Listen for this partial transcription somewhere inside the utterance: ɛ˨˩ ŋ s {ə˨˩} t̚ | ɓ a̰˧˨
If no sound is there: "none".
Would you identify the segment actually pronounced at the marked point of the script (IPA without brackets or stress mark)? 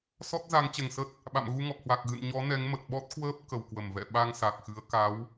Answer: ə˦˥